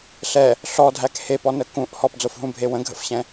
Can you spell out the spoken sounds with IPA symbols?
ɬ ɛ | ɬ ɔ dʱ æ k h e p ɔ n ə k ũ ʔ h ɔ p d͡z o f ɦ ũ bʱ e w ə̃ ɡʱ ə̰ f ɕ ɛ̃

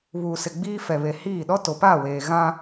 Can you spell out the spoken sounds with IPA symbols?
β uː˨ s ɪ˨ ɡ͡b iː˦ f ɛ˨ β e˨ h iː˦˨ ɗ ɔ˦ t o˨ p a˦˨ w eː˨ ɣ ã˦

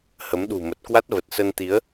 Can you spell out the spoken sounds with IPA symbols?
h ə˨˦ m ɗ ṳ˨˩ m ə˨˩ t̚ k w a˦˥ t̚ v ə˨˩ t̚ s ə˧ n t̪ i˨˦ ə̯

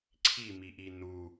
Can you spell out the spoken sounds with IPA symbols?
ǀʰ i m i ʔ i n u

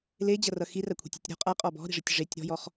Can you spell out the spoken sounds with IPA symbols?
l e d͡ʑ ʌ r ʌ x i r a kʷʰ i̤ tʲ ɔ̤ tʲ ɾ ɔ̤ qʼ a qʼ ɔ b ɔ̤ ɾ i̤ ʐ ɨ tʲ ʐ e tʲ ɾ ɔ̤ j ɔ χ

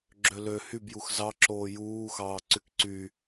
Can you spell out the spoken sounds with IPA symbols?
ɡ͡ǁ ø l ø h y b j u x z ɑ ǁ oː j uː x ɑː ǀ y k ǀ y

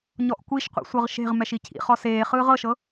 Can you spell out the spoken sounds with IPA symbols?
ɲ ɔ ʔ kʷ i ʃ qʷ ḭ sʷ ɤ ʁ ʃ e̤ ʁ m ɛ ʃ i cʰ ḭ χ ɔ s eː χ ɯː ʁ ɤ ʃ ɤ

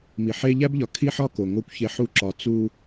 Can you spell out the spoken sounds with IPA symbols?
m i˨ ħ e˦ ʎ æ˦ b ʎ ɒ˨ kʰ i˦ ħ ɒ˦ k o˨ ŋ o˦ kʷ ç e˦ ħ u˦ ǁ ɒ˨ t͡s u˦

